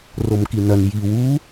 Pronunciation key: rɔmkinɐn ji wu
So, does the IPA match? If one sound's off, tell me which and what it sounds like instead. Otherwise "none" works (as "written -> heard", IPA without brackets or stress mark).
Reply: ɔ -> o